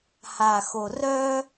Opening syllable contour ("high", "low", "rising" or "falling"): low